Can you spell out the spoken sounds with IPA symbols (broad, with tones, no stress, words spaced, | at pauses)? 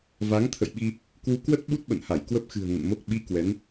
va˨˦ŋt̪ʰə̰˧˨jɓi˧ | kwu˨˦ kwə˦˥t̚ ɓu˦˥t̚ɓə̰˧˨nha˧˩j kwə˦˥p̚xɨ̤˨˩ə̯ ŋə̰˧˨nmo˦˥k̚ ɓi˨˦ kwɛ˨˦n